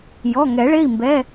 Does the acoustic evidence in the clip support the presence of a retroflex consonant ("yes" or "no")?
yes